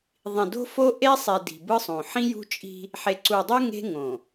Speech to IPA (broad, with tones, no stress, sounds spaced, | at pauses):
ðˤ ĩ˨ d o̤˦ f o˦ ʔ e˦ sˤ e˨ d i̤˨ b ɯ˦ sˤ õ˨ ħ ĩ˦ j ṳ˦ t͡ʃʼ i̤˦ | ħ e˨ ǀ u˨ dˤ u˦ ŋ e̤˦ ŋ õ˨